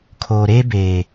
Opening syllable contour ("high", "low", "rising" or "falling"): low